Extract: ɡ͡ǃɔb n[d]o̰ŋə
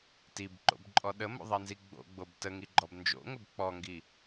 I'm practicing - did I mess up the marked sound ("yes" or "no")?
yes